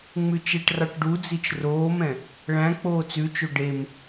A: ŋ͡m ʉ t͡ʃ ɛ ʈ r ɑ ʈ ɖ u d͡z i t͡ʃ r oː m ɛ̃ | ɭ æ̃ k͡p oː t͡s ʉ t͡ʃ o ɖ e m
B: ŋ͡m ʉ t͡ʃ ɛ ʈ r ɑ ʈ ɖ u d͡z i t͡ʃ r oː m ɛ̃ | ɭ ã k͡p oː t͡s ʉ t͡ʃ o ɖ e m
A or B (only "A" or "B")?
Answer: A